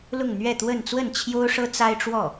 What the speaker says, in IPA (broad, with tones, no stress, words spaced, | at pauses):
lʊ˥˧ŋn̪ɥɛ˥˧ t̪wə˥˧n t͡swə˥˩nt͡ɕʰjo˥ʊ̯ʂɤ˥ t͡sa˥ɪ̯ʈ͡ʂwɔ˥˩